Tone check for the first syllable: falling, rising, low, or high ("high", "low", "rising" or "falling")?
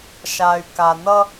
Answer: low